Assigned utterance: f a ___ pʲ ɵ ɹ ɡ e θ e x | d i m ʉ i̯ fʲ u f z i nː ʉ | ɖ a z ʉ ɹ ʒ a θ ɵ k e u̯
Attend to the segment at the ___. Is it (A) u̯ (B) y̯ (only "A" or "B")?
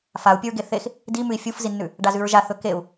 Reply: A